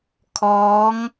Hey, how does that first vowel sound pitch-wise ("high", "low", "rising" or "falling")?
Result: rising